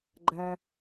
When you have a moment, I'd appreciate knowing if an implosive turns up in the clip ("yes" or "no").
no